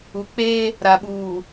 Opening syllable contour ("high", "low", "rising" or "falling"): low